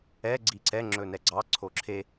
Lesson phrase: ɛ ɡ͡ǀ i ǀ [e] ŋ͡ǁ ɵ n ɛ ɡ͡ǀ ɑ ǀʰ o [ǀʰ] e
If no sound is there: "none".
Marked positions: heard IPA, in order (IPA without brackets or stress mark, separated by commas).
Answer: ɛ, ǁʰ